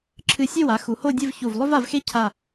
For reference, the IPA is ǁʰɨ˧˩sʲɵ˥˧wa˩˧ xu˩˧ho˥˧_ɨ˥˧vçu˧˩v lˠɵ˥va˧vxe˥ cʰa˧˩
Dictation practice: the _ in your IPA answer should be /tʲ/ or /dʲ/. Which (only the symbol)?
dʲ